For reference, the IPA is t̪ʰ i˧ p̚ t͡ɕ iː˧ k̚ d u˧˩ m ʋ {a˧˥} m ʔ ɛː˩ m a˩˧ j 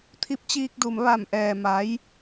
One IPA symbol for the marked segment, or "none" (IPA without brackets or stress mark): a˧˩